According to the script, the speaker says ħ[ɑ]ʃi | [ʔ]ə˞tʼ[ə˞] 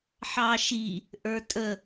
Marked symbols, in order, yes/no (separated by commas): yes, yes, no